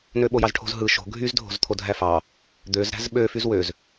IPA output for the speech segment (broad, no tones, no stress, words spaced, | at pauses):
nøɓojɑzʈʰo̤z ɦɯ ʃo̤ ɡʱyzdʱo̤zt̪ʰo dʱæfɑ | d̪øz ɾæ̤zɓø fyzwøz